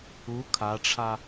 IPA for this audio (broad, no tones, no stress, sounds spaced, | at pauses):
u kʰ a ʈ͡ʂʰ a